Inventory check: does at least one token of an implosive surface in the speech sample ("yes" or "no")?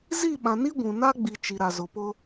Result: yes